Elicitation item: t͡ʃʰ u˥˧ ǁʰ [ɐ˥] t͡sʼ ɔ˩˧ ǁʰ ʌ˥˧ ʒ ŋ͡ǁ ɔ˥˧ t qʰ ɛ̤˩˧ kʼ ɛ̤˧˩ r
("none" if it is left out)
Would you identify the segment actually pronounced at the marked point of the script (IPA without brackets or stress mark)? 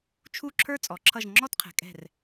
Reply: ə˞˥